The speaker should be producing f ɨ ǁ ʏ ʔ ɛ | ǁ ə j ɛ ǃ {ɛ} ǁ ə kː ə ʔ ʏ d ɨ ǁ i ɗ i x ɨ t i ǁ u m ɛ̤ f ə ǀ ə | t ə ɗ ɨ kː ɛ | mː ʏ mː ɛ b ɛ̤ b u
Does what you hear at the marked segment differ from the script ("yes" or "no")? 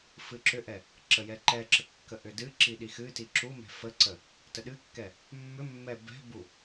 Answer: no